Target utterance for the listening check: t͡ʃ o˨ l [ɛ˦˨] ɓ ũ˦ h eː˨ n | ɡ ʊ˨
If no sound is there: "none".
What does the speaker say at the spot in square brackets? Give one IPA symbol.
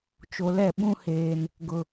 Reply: ɛ˦˨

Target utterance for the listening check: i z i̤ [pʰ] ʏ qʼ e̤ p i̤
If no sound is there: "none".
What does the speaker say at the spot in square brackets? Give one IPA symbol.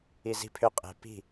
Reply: pʰ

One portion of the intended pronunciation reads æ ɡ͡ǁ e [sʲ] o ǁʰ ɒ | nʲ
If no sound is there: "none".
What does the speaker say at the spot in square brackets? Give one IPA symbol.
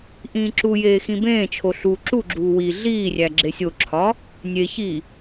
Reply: sʲ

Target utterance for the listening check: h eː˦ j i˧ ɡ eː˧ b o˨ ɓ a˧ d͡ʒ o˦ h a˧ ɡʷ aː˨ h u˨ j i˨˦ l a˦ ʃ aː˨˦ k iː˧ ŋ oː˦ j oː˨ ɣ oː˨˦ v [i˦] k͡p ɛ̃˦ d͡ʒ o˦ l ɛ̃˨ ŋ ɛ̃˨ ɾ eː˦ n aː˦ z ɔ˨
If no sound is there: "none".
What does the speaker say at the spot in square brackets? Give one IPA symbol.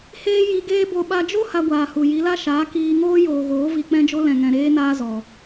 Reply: i˧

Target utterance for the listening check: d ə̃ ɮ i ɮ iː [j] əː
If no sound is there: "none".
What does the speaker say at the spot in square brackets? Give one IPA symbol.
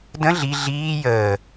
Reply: j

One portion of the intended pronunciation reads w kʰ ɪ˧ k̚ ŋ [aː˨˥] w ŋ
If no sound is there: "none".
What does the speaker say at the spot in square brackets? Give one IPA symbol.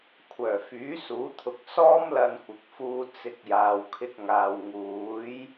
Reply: aː˨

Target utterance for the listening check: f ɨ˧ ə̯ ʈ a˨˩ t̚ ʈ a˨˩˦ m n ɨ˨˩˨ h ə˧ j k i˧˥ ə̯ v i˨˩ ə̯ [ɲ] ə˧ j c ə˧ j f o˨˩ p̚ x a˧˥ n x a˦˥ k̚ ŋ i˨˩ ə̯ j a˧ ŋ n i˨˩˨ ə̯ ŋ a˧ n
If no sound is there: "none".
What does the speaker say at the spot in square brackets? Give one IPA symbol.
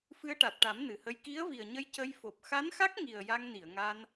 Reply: ɲ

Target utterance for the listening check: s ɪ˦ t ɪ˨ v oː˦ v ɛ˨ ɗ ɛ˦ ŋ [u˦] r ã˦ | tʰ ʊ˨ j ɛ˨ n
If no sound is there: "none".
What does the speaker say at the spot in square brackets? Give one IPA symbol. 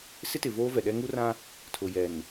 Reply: u˦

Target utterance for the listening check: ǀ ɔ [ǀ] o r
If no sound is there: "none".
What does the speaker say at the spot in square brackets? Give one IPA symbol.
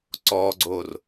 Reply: ɡ͡ǀ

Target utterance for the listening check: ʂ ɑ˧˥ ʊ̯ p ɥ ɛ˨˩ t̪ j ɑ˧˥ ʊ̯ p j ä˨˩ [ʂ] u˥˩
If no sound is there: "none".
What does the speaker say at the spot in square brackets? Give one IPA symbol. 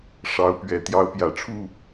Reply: ʈ͡ʂʰ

